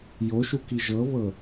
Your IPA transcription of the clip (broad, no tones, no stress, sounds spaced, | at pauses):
j o ʃ u k i ʒ ɤ β ɤ